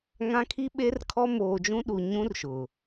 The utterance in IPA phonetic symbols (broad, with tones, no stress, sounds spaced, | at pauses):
ŋ ã˦ kʰ i˦ ɓ e˦ r kʰ ɔ˦ m oː˨ d͡ʒ ũ˦ ɗ u˨ ɲ ũ˦ r ʃ ʊ˨